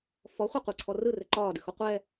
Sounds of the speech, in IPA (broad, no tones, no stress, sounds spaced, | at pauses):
f ɔ χʷ e qʷ ɘ ǀʰ ɔ r ɯ r ɘ ǃ ɒː d ɨ x o qʷ ɛ